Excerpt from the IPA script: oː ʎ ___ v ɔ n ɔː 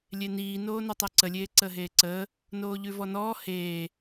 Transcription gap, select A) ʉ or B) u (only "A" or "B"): A